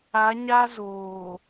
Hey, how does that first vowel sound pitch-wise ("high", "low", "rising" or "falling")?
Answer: rising